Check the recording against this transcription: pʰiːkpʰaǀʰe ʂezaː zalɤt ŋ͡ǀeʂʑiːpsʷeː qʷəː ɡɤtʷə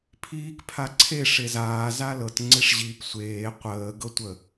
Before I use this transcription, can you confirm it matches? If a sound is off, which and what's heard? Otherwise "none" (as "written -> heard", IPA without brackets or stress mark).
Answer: none